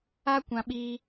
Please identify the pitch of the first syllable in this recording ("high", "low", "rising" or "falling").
high